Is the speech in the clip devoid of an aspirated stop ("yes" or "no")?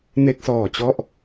yes